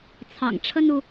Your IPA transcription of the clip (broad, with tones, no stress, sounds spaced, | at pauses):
t͡sʰ ɑ̰˨˩ ŋ ʈ͡ʂʰ ə˥ n u˨